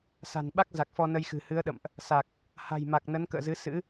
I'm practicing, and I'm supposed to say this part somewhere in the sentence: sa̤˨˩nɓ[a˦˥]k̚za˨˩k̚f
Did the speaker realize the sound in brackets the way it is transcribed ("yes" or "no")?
yes